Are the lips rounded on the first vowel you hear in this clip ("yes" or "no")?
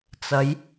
no